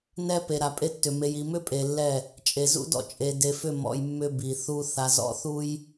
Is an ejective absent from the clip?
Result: no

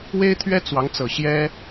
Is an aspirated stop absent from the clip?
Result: no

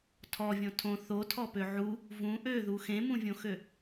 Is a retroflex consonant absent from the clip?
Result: yes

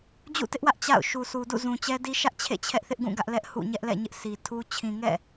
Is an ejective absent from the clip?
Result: yes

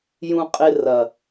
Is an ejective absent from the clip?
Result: no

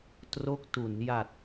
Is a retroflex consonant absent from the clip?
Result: yes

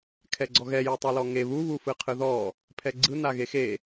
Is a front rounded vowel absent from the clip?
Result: yes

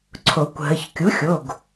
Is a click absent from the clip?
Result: no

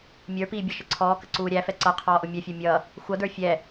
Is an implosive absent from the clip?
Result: yes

